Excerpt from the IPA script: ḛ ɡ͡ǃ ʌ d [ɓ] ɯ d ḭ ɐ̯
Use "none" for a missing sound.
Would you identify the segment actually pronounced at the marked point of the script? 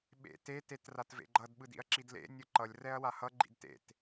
ɓ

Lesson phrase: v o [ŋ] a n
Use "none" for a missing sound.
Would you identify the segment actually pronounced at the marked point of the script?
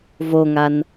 ŋ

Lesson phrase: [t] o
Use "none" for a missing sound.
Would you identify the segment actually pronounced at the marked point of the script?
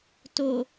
t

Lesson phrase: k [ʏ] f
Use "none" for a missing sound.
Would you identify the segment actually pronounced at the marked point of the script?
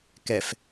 ɛ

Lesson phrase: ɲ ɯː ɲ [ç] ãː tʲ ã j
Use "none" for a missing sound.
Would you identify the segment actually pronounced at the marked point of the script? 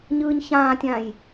ç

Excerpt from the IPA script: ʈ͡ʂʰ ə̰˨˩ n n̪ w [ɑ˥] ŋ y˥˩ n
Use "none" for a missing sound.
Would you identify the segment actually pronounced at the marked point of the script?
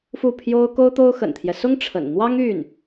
ɑ˥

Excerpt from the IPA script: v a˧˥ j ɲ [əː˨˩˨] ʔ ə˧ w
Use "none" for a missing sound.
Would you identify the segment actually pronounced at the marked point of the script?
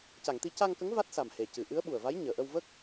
əː˨˩˨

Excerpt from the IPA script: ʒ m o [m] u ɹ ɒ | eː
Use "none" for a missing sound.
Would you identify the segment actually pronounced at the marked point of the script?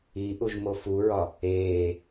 f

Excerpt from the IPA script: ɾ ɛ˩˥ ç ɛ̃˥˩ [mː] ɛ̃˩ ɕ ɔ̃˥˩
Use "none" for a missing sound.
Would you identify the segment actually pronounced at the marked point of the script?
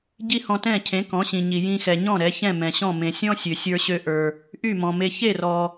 m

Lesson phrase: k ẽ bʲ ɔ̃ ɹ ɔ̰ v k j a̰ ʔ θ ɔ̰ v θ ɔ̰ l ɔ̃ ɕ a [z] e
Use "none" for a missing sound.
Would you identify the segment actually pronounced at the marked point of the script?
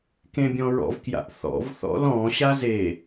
z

